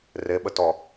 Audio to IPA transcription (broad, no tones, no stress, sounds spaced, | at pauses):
r e ɓ ə t ɔ